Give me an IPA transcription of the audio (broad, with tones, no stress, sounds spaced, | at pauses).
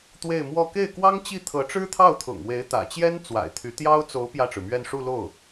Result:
t̪ w e˥˧ ɪ̯ m w ɔ˥˧ k e˥˩ ɪ̯ k w ɑ˥ ŋ t͡ɕ i˥˩ t̪ʰ ɤ˧˥ ʈ͡ʂ ɻ̩˥ t̪ʰ ɑ˥˩ ʊ̯ t̪ʰ ʊ̰˨˩ ŋ w e˧˥ ɪ̯ t̪ ä̰˨˩ t͡ɕ j ɛ˥ n t͡s w a̰˨˩ ɪ̯ t̪ʰ y˧˥ t̪ j ɑ˥ ʊ̯ t͡s o˧˥ ʊ̯ p j ä˥˩ ʈ͡ʂ ɻ̩˩ m ɥ ɛ˥˧ n ʂ u˥˧ l o˥˩ ʊ̯